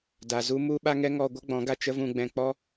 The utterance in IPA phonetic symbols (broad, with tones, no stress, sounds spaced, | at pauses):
d a˨ z u˧ m u˧ ɓ a˦ ŋ ɛ˦ ŋ ɔ˧ ɡʷ ə˦ ɡ͡b ɔ̃˨˦ ɡ a˧ t͡ʃ ə˦ v ũ˧ ɡ͡b ɛ̃˧ k͡p ɔ˦